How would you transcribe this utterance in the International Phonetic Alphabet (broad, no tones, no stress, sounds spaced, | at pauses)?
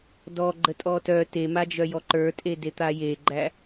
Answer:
d ɔ ɡ͡ǃ ə tʼ ɔ t œ t e m a d͡ʒ œ j ɔ ǃ ə˞ tʼ e d e t̪ a j e ɡ͡ǃ æ